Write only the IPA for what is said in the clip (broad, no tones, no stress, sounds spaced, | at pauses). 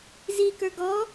z i k ə˞ ɡ ɔ